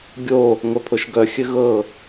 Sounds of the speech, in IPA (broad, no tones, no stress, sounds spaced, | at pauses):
ɡʲ o | ŋʷ œ pʰ o ʃ ɡ œ xʲ ɘ ɣ ɤ